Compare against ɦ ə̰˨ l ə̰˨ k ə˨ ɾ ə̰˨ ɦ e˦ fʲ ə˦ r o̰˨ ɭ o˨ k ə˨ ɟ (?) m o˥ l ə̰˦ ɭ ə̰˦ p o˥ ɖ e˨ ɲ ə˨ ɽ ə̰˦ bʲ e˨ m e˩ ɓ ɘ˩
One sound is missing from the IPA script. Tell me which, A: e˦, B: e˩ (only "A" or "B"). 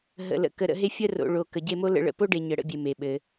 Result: A